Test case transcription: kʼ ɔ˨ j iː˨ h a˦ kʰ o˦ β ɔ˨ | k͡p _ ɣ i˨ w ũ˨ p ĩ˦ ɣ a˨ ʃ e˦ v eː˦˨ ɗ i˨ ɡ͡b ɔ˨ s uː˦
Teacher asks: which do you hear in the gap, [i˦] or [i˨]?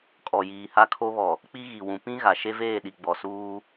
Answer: i˦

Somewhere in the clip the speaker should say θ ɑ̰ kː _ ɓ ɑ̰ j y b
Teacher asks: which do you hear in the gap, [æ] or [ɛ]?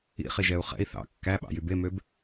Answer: æ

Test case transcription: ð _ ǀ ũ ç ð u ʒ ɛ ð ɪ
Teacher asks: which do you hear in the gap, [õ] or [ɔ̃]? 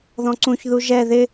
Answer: ɔ̃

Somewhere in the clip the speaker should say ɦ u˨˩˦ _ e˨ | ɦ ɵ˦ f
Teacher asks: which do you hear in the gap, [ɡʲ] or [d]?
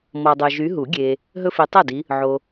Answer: ɡʲ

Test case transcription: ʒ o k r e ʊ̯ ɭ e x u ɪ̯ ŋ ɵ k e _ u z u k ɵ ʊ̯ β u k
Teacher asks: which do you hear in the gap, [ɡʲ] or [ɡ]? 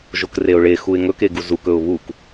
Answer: ɡ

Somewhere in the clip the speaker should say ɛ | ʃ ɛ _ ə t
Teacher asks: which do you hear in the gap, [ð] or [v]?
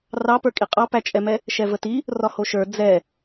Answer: v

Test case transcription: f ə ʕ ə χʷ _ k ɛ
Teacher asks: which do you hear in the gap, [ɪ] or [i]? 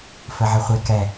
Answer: ɪ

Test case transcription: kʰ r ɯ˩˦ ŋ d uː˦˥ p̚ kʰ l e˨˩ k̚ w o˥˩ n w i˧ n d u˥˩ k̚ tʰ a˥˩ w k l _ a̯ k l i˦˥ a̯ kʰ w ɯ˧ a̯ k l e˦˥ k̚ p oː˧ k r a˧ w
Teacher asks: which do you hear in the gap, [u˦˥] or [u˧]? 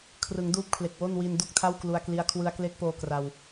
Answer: u˧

